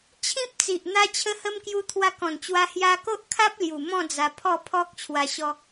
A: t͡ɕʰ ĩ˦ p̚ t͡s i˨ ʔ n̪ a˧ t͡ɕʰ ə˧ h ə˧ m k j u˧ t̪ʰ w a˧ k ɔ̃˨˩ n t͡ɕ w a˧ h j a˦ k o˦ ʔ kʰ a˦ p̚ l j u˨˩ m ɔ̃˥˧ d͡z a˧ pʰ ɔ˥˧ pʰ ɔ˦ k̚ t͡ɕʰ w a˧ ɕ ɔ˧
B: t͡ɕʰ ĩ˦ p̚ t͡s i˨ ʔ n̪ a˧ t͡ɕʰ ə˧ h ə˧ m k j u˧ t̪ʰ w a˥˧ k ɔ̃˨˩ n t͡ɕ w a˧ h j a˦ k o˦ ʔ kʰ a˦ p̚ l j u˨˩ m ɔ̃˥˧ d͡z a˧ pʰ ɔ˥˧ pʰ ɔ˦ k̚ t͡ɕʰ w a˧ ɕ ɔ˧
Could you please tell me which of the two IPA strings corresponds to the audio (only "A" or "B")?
A